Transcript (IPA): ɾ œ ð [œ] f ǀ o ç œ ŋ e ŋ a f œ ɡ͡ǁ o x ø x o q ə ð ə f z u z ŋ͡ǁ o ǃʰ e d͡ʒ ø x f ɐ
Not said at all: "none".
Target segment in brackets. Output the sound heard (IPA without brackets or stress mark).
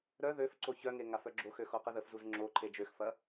ø